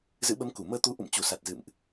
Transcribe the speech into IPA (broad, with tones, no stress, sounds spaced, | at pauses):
z ɨ̰˧˥ ɓ ə˨˦ m k u˧˩ m əː˧ t̪ u˨˦ ʔ ṵ˧˨ m t͡ɕ u˨˩ s a˨˩ t̚ z ɨ̰˧˨ m ʔ